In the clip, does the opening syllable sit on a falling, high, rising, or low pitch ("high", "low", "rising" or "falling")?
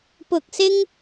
low